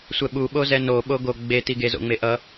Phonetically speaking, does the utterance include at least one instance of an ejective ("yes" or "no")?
no